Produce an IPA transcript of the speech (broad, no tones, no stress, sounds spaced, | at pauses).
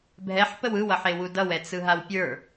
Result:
bʱ ɛ ħ p ə w ɯ w ʌ ħ e w u d ʌ w ɛ t͡s ɯ ɦ a w pʲ ə˞